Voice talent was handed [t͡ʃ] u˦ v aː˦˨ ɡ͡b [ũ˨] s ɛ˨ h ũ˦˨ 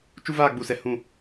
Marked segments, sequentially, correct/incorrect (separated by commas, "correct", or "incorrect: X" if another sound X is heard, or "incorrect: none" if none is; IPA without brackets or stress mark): correct, incorrect: u˨